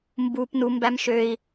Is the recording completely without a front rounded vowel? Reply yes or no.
no